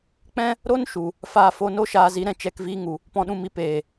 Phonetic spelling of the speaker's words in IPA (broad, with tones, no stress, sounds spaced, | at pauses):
k͡p ɛ̃˦ | ɾ o˦ n ʃ u˨ | f aː˧ f o˧ n o˦ ʃ aː˧ z i˨˦ ɾ ɛ̃˨ t͡ʃ ɛ˧ k v iː˧ ŋ u˨ | p ɔ̃˨ ɗ ũ˨ m i˨ p eː˨